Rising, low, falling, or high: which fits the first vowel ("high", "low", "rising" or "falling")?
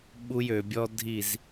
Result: high